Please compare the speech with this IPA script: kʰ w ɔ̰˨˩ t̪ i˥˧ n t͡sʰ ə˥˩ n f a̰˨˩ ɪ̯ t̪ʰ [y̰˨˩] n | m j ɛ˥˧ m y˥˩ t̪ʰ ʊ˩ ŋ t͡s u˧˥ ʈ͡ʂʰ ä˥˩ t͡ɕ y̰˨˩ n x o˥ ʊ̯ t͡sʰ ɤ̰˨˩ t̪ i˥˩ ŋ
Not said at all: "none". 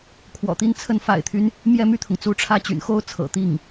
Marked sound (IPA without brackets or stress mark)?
y˦